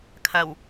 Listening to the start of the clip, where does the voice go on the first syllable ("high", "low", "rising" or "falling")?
low